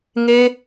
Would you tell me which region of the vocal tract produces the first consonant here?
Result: velum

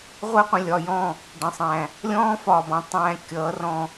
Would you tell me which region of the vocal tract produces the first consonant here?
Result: uvula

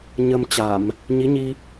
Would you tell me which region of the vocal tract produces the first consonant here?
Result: palate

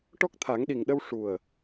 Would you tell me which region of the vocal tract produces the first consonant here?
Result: retroflex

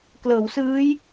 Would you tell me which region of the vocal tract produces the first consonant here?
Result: velum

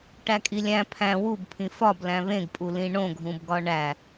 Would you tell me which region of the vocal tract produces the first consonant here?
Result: retroflex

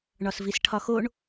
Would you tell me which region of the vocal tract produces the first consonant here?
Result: retroflex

